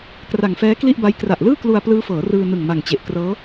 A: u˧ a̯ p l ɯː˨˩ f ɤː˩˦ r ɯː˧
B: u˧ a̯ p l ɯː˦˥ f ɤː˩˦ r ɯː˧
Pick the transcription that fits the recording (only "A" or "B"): B